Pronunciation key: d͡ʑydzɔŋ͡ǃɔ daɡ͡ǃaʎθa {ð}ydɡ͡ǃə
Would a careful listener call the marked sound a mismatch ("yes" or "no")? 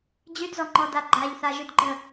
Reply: yes